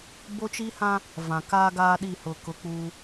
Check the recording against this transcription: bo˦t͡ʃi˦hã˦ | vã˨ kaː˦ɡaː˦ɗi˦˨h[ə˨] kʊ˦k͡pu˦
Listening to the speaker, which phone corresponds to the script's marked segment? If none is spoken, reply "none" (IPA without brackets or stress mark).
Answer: ʊ˨